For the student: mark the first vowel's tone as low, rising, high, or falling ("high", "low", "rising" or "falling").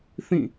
falling